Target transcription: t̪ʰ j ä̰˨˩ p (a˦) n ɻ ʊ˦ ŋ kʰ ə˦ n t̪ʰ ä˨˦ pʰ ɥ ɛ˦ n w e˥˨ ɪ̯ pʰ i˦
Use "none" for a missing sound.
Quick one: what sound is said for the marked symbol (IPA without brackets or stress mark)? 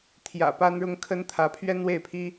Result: a˦